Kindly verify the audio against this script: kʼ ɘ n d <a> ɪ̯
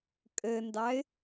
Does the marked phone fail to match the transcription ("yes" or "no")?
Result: yes